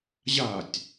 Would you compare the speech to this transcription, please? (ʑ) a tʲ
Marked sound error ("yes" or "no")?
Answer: no